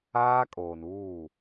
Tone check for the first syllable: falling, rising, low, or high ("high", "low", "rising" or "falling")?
high